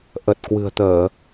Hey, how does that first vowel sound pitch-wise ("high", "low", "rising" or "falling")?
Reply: low